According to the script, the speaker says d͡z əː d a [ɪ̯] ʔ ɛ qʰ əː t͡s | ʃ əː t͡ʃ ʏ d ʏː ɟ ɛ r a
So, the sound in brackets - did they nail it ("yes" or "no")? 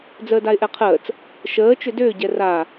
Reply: yes